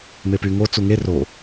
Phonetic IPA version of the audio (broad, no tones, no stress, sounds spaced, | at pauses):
m e p y ŋ o t͡s u ŋ e r o